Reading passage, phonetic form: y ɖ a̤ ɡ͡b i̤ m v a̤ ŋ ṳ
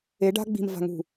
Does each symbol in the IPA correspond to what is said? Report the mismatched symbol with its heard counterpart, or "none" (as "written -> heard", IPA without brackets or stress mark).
y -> e